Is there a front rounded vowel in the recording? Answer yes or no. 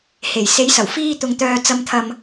yes